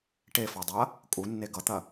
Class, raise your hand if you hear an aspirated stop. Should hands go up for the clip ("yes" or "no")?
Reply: no